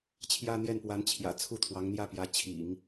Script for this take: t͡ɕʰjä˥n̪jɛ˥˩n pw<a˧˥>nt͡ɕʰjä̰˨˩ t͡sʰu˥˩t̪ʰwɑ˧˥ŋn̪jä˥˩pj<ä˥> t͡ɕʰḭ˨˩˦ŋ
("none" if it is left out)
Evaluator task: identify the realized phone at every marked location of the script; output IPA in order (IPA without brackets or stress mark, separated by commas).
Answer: a˧˥, ä˧˥